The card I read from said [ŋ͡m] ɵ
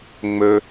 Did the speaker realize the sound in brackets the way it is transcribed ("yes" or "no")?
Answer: yes